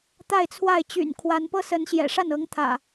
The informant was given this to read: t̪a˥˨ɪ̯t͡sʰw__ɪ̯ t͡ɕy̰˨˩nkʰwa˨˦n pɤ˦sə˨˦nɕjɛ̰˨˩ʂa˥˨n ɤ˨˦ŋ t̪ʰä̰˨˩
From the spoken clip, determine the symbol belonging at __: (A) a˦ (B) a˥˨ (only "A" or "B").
B